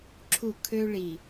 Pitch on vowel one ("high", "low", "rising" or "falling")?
falling